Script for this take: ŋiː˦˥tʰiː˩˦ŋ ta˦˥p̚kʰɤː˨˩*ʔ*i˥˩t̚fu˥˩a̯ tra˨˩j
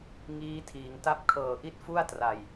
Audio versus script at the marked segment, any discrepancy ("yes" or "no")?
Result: no